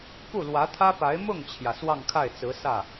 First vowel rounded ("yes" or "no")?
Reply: yes